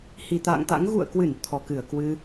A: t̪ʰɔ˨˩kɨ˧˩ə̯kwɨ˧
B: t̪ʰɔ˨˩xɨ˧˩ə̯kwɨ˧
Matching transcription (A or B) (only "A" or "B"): A